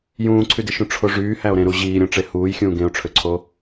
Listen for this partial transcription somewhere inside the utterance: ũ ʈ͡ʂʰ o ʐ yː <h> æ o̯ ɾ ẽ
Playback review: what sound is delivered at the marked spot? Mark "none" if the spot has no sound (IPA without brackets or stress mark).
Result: h